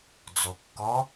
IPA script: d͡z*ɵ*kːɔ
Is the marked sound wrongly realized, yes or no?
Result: yes